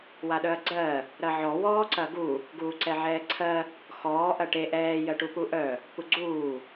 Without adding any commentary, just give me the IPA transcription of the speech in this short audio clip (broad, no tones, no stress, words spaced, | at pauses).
waɗœɐ̯ɡ͡ǀɜ | ɾɐʕɔ wɔːǀɐɡu | ɡuːǀɛʕɛːǀʰɜ | xɔː ʔɐʈe ʔɛː jɜʈupuʔœ | puɡ͡ǀuː